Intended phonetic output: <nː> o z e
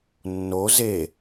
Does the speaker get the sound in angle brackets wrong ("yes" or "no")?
no